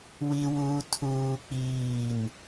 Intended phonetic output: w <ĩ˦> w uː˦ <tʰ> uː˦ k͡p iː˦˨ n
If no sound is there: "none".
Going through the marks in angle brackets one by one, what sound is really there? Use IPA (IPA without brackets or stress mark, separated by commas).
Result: i˦, tʰ